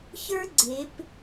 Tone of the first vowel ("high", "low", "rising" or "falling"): high